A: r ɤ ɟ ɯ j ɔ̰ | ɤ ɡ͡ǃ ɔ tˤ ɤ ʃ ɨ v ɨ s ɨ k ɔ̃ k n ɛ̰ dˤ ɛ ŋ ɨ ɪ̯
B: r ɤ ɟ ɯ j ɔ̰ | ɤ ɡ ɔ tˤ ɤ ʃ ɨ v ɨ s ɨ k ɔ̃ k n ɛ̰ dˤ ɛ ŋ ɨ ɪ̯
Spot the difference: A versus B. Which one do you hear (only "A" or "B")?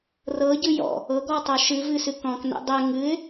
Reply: B